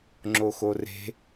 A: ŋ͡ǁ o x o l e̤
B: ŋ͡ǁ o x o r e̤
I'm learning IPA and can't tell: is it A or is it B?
B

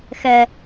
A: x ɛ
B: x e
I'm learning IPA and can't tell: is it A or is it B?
A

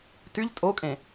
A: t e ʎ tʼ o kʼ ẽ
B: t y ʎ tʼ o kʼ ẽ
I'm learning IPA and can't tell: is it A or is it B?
B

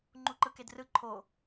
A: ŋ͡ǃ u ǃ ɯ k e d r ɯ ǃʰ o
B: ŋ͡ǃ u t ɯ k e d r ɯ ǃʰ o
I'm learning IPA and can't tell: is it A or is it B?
A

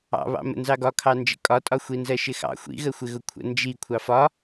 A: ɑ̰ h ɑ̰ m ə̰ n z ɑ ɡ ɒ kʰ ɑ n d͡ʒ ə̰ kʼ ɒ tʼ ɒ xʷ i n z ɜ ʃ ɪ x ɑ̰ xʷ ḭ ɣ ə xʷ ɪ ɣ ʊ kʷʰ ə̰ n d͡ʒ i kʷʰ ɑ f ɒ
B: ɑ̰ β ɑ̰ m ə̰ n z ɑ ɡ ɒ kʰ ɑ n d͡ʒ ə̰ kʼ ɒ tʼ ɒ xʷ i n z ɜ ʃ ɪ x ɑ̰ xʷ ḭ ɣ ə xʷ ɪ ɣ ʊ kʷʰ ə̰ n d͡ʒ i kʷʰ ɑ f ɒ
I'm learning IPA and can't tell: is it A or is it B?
B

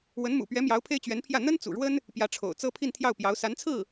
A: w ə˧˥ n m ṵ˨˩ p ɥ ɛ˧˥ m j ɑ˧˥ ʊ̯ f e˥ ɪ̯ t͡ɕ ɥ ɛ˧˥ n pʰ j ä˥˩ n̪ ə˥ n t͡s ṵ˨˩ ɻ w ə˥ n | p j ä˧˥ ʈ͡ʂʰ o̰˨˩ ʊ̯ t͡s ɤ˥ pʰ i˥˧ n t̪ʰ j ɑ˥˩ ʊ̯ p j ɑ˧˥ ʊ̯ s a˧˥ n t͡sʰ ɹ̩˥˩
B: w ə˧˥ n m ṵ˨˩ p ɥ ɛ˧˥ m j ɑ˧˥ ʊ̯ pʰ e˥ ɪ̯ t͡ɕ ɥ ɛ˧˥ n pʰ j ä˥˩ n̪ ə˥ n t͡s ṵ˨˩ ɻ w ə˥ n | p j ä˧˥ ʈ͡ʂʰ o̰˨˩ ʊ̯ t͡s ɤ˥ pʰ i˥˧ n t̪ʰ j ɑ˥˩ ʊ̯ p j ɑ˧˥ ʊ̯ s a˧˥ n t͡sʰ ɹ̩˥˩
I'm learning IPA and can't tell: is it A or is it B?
B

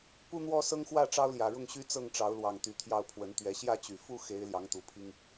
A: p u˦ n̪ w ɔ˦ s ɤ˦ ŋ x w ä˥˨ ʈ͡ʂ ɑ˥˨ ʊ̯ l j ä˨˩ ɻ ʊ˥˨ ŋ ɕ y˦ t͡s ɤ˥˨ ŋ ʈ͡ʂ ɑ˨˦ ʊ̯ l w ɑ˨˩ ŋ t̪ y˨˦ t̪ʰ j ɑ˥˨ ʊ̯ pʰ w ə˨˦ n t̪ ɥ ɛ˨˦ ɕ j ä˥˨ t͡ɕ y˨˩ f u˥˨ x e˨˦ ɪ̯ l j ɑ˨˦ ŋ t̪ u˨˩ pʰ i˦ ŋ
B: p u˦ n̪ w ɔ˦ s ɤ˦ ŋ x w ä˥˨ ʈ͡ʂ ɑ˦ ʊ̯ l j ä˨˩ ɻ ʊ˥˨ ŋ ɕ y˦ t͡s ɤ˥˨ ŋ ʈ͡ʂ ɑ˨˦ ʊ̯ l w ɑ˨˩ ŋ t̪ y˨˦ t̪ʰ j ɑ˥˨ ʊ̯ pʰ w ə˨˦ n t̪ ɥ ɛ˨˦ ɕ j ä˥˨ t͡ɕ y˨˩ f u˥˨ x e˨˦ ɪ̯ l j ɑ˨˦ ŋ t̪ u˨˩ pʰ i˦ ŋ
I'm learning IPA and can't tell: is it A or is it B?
B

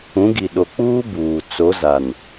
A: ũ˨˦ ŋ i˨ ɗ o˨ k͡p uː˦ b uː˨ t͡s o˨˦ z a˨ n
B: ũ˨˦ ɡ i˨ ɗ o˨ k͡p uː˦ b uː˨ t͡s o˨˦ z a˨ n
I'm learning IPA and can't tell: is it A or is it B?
B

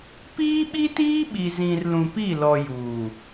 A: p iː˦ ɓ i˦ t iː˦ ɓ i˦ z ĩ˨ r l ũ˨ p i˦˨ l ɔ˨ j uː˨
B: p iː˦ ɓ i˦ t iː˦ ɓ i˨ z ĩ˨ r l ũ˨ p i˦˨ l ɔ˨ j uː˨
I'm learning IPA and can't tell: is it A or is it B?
B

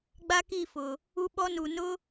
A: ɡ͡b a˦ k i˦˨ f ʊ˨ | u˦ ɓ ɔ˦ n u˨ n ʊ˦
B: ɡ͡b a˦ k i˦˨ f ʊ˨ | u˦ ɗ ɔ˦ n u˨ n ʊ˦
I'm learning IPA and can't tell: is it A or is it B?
A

